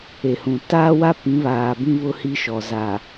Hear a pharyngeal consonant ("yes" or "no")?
no